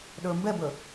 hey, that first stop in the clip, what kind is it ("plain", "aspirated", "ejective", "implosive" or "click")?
implosive